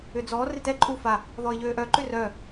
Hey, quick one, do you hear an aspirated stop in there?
no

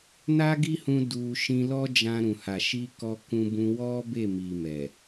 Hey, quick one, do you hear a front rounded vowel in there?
no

